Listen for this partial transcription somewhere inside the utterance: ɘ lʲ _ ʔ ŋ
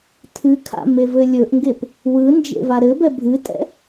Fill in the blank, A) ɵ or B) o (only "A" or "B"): A